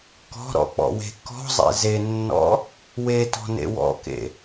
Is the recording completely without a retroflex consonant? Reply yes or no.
yes